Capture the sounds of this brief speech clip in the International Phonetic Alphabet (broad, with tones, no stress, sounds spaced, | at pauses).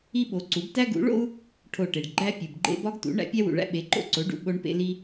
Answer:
i˥ ɓ o˩˥ ǀ u˩˥ b t æ˥ ɡ ṵ˩˥ ɭ o̰˥ u̯ | ʈʰ o˧˩ ʈ e˩ ɖ ɡ͡ǃ æ˥ pʲ u˩ b ɡ͡ǃ ḛ˥ b ɒ˥ ɡ t ṵ˩˥ ɳ æ̰˥ pʲ æ˥ w ṵ˩ ɭ æ̰˥ ɓ e˩˥ ǃ o̰˥ ǀ o˩˥ ɖ ṵ˩ ɓ o˥ ɳ p ḛ˥ l i˥